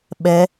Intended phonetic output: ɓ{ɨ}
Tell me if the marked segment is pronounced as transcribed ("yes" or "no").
no